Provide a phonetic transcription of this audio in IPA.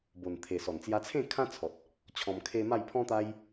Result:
b o˨˩ n t̪ʰ e˨˩ s ɔ˨˩ n t͡s j a˧ t͡sʰ ẽ˥˧ kʰ ã˦ t͡sʰ ɔ˨ t̚ | t͡ɕʰ ɔ̃˧ m kʰ e˦ m a˥˧ j pʰ ɔ̃˦ t̪ a˦ j

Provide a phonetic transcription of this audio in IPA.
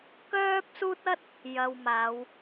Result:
k œː˥ p̚ s uː˥ t̚ ɐ˥ t̚ | j ɐ˨ w m aː˨˧ w

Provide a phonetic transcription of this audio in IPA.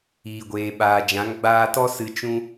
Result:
iː˨ ɡʷ eː˨ ɓ aː˨ d͡ʒ ã˨˦ ŋ ɡ͡b aː˧ t ɔ˦ s ɨ˧ t͡ʃ ũ˦

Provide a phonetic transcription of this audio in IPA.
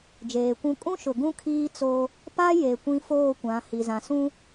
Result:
d͡ʒ eː˨ kʷ ũ˦ kʼ ũ˦ ʃ ʊ˨ ɡ ũ˦ kʰ iː˦ t͡s o˦ | p a˦ j e˨ kʷ ĩ˦ f oː˦˨ kʷ ã˨˦ h i˨ z ã˨ s ũ˦

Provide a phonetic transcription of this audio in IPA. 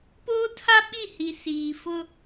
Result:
p oː˦ tʰ a˦ ɓ i˦˨ h i˨ s iː˨ f ʊ˦

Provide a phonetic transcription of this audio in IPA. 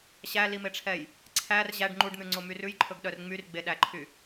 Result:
ɕ æ l i m e ʈ͡ʂʰ ɛ j | ǀʰ æ r ʑ æ ɖ ŋ͡ǃ u ɖ n̪ ʉ ŋ͡ǀ o m y r ʉ j ǃʰ ɵ ɡ ɗ œ r ŋ͡m y r ɡ͡b e ɗ æ ǃʰ y

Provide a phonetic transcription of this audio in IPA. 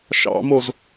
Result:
ʃ ɑ̰ m o z

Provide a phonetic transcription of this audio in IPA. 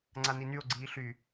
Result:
ŋ͡ǀ a n i n y o̯ ɡ͡ǀ iː ɬ y

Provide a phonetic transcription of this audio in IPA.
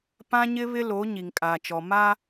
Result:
p ã˦ ɲ ɪ˦ β ɪ˦ l o˨˦ ɲ i˨ ŋ kʼ aː˨ t͡ʃ ɔ˨ m a˦

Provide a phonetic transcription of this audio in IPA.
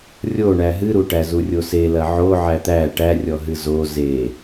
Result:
rʲ o ɳ æ ɦ ɨ ɾ u ʈ æ z u rʲ o s e l ɐ ʕ o ʕ æ t̪ æ ʈ æ rʲ ɔ ɦ ɨ z o z e

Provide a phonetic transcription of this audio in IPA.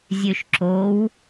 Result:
zʲ ø ʃ ǁ o w

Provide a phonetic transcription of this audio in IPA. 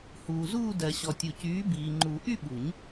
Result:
h uː˨ z uː˥˧ d ɜ˨ ɕ ɔ˨ tʲ u˨ c yː˨˥ b iː˨ ŋ͡ǃ u˨˩˦ ʔ y˥˧ ɓ u˨˩˦ ɲ

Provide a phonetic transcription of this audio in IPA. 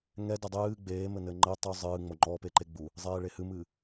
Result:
ŋ ɛ d ɘ dˤ ɨː ɡ͡b eː m ɘ n ɘ ŋ͡ǃ ɘ tˤ u zˤ ɨː ŋ͡m o ŋ͡ǃ ɔ p e ǃ e ɡ͡b u | zˤ eː ɭ e h ɨ m ɨː

